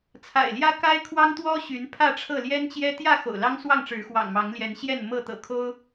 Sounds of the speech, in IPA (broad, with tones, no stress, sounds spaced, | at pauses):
t͡sʰ a̰˨˩ ɪ̯ l j ä˦ k a˦ ɪ̯ kʰ w ɑ˦ ŋ t̪ w ɔ˦ ɕ y˨˦ n pʰ ä˥˨ ʈ͡ʂʰ ɤ˥˨ l j ɛ˦ n t͡ɕ j ɛ˦ t̪ j ä˥˨ x o̰˨˩ ʊ̯ l ɑ˦ ŋ s w ɑ˥˨ ŋ ʈ͡ʂ ɻ̩˨˦ x w ɑ̰˨˩ ŋ m ɑ˨˦ ŋ l j ɛ˨˦ n ɕ j ɛ˥˨ n m ɤ˥˨ t̪ ɤ̰˨˩ kʰ o˦ ʊ̯